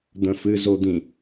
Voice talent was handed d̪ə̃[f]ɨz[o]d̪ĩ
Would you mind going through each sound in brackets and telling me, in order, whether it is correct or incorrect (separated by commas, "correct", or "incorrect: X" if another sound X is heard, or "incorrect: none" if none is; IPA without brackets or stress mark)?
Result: correct, correct